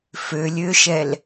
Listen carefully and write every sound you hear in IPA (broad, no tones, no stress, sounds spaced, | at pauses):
f ø lʲ ø ʃ ɛ l